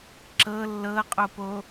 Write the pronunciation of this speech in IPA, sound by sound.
ǁ ɤ lː ɤ qʼ o p o

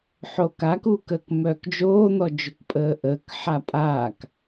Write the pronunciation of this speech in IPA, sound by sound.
ħ oː k a k uː k əː k m œː k d͡ʒ oː n̪ ɔ d͡ʒ o k pʼ əː ʔ əː k ħ a pʼ aː k

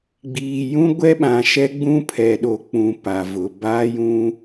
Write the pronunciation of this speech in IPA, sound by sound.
ɡ͡b iː˨ j ũ˦ ɡʷ ɛ˦ ɓ ã˨ ʃ ɛ˦ ɡ͡b ũ˦ pʰ ɛ˨ ɗ o˨ k͡p ũ˨ p a˨ v ʊ˨ b aː˦ j ũ˦

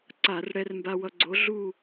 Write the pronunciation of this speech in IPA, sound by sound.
ǀ a˧˩˧ r ɽ ɛ˧ r m b a˧ w ʌ˧ ɡ͡ǀ o˨˥ ɮ u˥˨

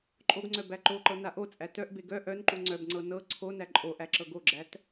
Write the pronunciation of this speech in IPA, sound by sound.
ǃʼ o ɡ ŋ͡ǀ œ b æ ǃ o ǃ ɤ n a ʔ o t͡sʼ æ t œ ʔ b e ɡ œ ʔ œ n ǃ u ŋ͡ǀ œ b ŋ͡ǀ ɤ n ɤ ǀʰ o n æ ǃʼ o ʔ æ ǁ ɤ ɡ o ɡ͡ǁ æ t

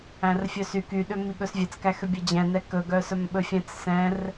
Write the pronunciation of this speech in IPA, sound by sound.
æ̃ r fʲ œ s y k y ɗ ø m i ɠ ɵ s vʲ ɛ t͡s k æ x ø bʲ ɛ d͡ʑ ɛ̃ n ɛ k ɵ ɡ œ s œ m ɓ ɵ fʲ ɛ̃ t͡s s ɛ̃ r

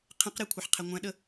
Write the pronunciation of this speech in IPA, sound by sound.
qʰ ẽ q ɾ e kʷʰ a ħ qʰ e ŋʷ æ̃ ɗ ə

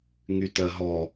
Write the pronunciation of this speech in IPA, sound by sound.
ŋ y t ɜ ɦ ɔ

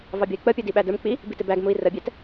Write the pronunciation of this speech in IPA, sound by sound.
v ɑ bʲ ɔ i̯ k͡p ə pʲ u d i ɓ æ d ə˞ m k͡p i | b i t ɪ b æ ɡ m u i̯ r ə bʲ ɛ t

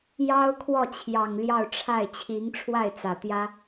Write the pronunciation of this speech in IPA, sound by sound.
j ɑ˥ ʊ̯ kʰ w ɔ˥˩ t͡ɕʰ j ɑ˨˩ ŋ l j ɑ˥˧ ʊ̯ ʈ͡ʂʰ a˥˩ ɪ̯ t͡ɕʰ i˧˥ ŋ ʈ͡ʂʰ w a˥˩ ɪ̯ t͡s ä˨˩ t̪ j ä˥

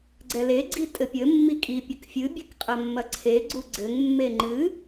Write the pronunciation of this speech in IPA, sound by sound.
ɡ͡ǀ ɛ l e ɡ͡ǀ i tʼ ɘ pʲ ɘ mː i kʼ i pʲ ɐ k fʲ ɨ bʲ ɨ k qʼ ɐ mː ɐ ǀʰ e ɡ͡ǀ u ɡ͡ǀ ɘ ŋ mː e ŋ͡ǃ ɨ

